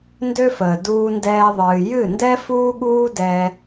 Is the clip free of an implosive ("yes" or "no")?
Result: no